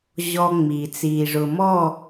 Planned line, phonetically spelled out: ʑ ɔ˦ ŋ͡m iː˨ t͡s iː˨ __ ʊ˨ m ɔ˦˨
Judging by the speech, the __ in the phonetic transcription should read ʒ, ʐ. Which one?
ʐ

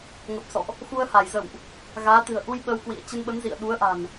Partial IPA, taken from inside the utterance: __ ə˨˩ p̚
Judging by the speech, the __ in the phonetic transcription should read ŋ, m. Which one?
ŋ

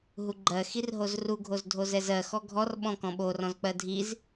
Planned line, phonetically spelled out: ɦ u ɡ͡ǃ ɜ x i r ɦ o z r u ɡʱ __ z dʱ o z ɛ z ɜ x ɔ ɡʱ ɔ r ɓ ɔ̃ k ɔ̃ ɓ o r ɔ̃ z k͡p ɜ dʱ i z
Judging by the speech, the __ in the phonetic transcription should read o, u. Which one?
o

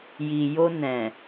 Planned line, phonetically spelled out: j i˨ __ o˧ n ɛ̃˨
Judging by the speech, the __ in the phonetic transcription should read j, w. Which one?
j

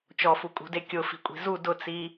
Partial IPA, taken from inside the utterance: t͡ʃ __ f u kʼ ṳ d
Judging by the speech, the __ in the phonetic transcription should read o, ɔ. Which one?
ɔ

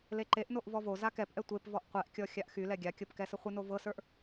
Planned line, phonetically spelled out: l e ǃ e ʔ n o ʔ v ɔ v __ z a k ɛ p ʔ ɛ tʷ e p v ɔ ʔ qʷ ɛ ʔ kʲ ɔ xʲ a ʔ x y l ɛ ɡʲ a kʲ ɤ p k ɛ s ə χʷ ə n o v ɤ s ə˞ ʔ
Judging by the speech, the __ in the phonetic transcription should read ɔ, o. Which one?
o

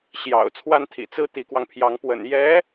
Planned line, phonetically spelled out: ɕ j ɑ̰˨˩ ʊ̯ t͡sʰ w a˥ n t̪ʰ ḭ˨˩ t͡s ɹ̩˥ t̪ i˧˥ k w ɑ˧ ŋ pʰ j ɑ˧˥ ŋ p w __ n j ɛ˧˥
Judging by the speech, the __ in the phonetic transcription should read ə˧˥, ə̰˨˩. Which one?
ə̰˨˩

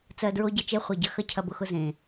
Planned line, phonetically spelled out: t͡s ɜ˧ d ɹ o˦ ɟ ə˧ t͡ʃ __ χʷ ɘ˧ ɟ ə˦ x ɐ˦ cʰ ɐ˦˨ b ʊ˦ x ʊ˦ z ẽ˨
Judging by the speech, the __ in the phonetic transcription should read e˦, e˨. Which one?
e˦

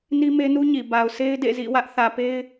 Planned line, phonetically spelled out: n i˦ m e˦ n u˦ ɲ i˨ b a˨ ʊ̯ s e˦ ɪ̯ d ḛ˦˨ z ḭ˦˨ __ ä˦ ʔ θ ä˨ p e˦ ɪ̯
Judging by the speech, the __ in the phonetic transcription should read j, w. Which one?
w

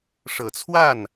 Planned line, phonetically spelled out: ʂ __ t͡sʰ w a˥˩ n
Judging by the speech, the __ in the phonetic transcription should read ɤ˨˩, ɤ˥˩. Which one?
ɤ˨˩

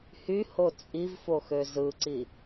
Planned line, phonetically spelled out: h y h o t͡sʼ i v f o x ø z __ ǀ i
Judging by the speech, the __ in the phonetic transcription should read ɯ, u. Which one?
ɯ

